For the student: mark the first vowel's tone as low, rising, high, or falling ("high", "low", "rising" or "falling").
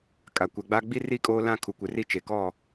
low